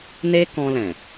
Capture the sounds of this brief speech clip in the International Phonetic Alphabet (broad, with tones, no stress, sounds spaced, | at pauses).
n e˧ k ɔ̃˧ l ɛ̃˨